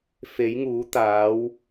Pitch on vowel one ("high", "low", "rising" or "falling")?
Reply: rising